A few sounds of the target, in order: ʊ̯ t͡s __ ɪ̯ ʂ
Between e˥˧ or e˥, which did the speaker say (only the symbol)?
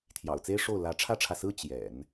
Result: e˥